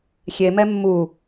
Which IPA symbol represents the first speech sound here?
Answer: xʲ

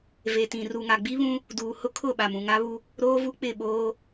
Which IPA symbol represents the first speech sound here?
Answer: v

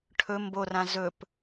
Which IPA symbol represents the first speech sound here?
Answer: ʈʰ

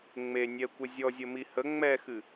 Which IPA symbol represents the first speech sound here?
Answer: ŋ͡m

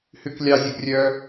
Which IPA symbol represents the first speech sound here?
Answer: h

